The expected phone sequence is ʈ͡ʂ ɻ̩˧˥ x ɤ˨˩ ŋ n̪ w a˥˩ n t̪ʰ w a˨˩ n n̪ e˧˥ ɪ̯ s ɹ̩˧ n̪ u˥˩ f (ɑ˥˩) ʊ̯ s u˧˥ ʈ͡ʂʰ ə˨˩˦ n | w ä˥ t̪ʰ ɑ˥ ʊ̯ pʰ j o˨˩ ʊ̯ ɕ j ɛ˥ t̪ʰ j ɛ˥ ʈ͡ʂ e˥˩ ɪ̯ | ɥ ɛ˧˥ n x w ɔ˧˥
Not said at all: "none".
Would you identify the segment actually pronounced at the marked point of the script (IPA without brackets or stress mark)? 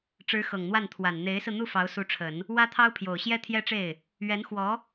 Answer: ɑ˧˥